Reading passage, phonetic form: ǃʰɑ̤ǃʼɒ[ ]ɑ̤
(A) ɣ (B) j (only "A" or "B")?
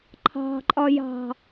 B